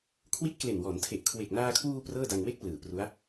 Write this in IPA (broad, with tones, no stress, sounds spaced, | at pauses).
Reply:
kʰ w i˦˥ t̚ k l e˨˩ n w ɔː˩˦ n tʰ e˨˩ ʔ kʰ w e˨˩ k̚ n aː˧ kʰ w uː˧ p r ɤː˥˩ d a˧ ŋ w e˥˩ k̚ p l ɯː˨˩ p r u˦˥ a̯